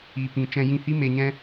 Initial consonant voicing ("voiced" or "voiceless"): voiceless